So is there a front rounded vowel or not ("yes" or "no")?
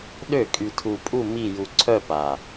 yes